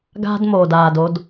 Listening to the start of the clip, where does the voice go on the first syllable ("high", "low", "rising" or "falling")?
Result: high